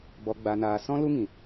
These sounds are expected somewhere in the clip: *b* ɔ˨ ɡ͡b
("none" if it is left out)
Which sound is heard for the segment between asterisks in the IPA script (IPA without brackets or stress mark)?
b